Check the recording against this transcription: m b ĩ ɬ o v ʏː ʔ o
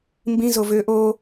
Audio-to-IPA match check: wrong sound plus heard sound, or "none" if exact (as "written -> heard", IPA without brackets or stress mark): ɬ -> z